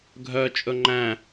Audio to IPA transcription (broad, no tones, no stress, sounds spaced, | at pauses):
ɡʱ œ t͡ʃʼ ɵ ŋ͡ǃ æ̃